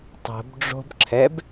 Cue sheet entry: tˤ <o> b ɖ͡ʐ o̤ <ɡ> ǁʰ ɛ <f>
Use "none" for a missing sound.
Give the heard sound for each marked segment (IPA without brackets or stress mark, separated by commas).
o̤, b, b